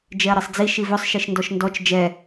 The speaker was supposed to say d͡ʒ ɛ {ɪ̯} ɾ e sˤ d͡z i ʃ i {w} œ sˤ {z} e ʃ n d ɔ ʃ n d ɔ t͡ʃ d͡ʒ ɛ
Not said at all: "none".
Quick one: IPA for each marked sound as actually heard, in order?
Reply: ə̯, v, ʃ

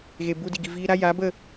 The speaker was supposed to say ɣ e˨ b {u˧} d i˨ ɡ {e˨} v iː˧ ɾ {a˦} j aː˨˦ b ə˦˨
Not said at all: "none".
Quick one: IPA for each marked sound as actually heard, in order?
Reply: u˧, i˨, a˦

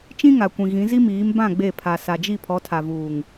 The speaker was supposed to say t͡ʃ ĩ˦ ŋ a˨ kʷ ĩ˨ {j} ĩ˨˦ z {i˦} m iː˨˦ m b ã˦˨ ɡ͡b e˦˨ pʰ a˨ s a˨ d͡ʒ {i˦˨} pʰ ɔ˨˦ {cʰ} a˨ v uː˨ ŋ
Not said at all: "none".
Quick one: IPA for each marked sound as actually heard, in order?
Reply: ɣ, i˦, i˦˨, tʰ

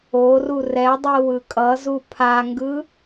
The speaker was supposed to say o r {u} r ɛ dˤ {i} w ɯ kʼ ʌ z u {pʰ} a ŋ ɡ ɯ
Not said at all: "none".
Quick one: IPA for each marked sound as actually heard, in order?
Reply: u, i, pʰ

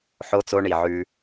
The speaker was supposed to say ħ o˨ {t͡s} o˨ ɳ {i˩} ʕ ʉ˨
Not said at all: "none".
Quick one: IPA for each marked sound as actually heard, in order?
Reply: t͡s, i˩

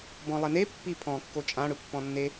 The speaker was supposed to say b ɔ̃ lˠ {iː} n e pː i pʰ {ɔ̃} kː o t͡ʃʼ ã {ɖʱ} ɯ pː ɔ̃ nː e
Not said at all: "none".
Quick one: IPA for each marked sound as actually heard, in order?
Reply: i, ɔ̃, ɽ

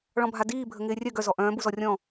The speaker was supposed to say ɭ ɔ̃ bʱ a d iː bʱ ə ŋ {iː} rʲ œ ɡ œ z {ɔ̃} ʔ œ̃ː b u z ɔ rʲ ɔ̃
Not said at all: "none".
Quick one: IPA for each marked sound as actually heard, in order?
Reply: ɪː, ɔ

